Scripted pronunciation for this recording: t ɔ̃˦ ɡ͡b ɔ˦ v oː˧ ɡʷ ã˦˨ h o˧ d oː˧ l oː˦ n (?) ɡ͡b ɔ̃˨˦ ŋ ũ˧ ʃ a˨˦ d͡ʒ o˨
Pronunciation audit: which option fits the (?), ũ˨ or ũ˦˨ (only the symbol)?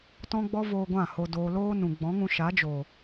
ũ˨